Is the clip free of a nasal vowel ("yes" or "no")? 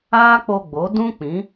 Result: no